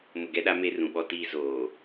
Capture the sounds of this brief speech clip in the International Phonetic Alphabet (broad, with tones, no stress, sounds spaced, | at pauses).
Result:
m ʊ˨ ɡ ɛ˦ ɗ a˦ m e˦ r ũ˨ ɓ ɔ˦ t iː˦ z oː˨